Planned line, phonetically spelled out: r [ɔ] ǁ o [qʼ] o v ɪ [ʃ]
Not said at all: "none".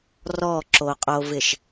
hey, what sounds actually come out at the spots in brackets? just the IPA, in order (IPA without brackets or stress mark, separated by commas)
ɔ, qʼ, ʃ